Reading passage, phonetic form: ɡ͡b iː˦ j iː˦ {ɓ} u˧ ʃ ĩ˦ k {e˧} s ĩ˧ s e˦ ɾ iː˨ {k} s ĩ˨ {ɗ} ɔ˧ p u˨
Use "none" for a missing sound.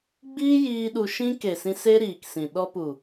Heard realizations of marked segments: ɗ, e˨, k, ɗ

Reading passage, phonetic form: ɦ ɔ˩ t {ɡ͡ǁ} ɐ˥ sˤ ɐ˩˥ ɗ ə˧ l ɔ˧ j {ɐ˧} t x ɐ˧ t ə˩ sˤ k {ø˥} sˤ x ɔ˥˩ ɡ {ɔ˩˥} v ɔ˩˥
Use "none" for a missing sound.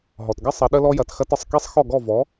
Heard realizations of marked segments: ɡ, ɐ˩, e˥, ɔ˥˩

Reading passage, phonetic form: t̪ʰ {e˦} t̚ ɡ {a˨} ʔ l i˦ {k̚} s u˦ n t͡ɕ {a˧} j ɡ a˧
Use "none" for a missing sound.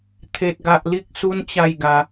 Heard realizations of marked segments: e˦, a˦, k̚, a˥˧

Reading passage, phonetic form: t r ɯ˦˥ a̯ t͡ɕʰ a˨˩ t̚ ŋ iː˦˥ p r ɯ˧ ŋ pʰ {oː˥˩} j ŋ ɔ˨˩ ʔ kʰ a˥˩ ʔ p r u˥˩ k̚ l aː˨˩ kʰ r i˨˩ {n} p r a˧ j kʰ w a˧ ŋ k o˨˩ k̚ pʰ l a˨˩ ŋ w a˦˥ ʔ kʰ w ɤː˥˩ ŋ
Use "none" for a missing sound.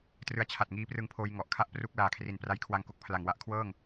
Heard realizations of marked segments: oː˧, n

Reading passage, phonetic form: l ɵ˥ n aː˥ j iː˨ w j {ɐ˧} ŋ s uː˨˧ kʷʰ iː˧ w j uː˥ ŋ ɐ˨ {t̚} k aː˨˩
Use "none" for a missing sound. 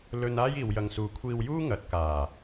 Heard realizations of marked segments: ɐ˨, t̚

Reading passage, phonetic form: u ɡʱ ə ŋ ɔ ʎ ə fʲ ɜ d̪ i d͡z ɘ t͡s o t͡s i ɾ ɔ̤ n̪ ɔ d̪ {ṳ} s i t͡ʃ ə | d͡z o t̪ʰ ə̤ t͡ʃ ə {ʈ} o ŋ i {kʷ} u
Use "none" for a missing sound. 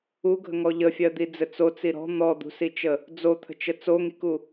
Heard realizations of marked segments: ṳ, t͡s, k

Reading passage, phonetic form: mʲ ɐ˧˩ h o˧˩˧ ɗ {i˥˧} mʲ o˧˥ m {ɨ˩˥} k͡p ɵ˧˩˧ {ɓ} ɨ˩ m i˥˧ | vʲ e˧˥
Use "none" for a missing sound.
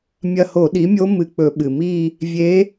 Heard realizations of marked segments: i˩˥, ɨ˧˩, ɓ

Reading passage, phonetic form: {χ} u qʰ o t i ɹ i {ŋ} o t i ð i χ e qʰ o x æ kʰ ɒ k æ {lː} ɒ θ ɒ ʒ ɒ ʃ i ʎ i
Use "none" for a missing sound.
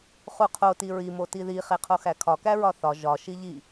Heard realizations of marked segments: χ, m, ɹ

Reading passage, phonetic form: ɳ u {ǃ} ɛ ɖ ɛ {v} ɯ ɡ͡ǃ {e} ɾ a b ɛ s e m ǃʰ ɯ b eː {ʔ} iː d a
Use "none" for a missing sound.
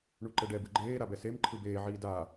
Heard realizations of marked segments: ǃ, b, eː, ʕ

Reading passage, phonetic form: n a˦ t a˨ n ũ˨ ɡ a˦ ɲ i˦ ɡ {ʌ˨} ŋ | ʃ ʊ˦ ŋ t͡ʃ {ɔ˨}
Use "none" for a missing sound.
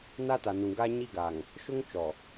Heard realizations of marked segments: a˨, ɔ˨

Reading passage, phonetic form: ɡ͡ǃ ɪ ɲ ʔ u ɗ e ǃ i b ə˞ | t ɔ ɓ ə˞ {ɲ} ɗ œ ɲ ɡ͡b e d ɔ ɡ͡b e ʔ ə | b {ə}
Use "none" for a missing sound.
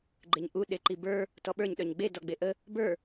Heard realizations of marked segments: ɲ, ə˞

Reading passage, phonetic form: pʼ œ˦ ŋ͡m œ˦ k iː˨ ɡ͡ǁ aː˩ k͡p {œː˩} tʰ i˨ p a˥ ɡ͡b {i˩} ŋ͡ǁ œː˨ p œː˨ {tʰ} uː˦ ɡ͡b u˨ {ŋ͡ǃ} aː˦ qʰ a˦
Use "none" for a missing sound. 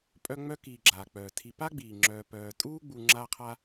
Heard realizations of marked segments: œː˩, iː˩, tʼ, ŋ͡ǁ

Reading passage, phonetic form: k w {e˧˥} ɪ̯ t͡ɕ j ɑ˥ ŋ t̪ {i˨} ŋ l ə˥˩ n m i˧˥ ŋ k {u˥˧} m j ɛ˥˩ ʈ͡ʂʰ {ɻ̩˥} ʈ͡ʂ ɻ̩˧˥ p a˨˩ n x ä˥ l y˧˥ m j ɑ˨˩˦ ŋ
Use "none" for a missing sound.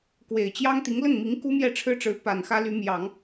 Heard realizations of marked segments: e˨˩, i˧˥, u˥, ɻ̩˥

